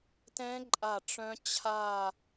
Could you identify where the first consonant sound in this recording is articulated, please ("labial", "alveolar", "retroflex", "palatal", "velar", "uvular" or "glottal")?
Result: alveolar